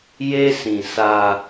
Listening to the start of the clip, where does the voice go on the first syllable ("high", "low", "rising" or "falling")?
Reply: high